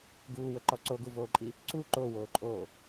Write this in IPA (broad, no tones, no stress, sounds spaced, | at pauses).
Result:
ɡ uː w ə ǃ ɔ ǀ o ɡ u v oː ǃʼ i | ǀ u ǃ o w oː ǃʼ oː